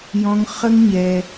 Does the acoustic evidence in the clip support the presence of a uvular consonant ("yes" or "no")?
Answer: yes